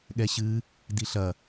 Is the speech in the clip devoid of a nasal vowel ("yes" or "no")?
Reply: yes